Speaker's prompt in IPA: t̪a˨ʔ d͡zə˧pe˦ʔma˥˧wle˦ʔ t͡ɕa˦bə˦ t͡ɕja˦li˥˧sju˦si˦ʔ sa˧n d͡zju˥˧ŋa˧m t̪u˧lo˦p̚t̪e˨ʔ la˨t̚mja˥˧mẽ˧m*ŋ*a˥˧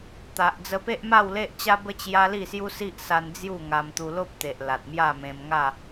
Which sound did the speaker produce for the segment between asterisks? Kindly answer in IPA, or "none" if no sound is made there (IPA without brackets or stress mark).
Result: ŋ